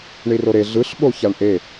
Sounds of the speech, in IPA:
ɳiroɾe ɮɯɬɓo çaɳʔe

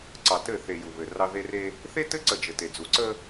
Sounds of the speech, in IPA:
ǀɑ˨tɘ˦˨θe˨ ju˨βɘ˨rɑ˦ ðe˦re˦ | θe˦tɘ˦ ǀə˦˨d͡ʒɘ˨te˨d͡zu˨ ǀə˦

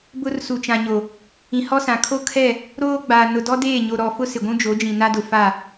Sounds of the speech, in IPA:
bʊ˦rsu˨t͡ʃã˨ɲo˨ | ĩ˨hɔ˦sã˨ kʰo˦ kʰɛ˦˨ | ɾoː˦ɡ͡ba˨ nʊ˨dɔ˦deː˦˨ɲo˨ ɾɔ˨fʊ˦ sɪ˨ɡʷũ˦d͡ʒo˨˦d͡ʒĩ˨ na˦dʊ˨ fa˦˨

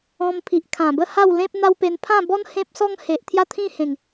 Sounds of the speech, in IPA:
ɔ̃˧mpʰi˨ʔ kʰã˨˩bə˥˧ha˥˧w lẽ˦p̚n̪a˦wpe˧n pʰã˥˧bɔ˦n hẽ˦p̚sɔ˦ŋ he˨ʔt̪ʰja˥˧t̪ʰĩ˥˧hẽ˨˩ŋ

